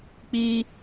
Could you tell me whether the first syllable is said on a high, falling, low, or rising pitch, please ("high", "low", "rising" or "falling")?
high